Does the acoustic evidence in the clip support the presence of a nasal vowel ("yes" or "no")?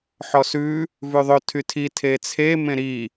yes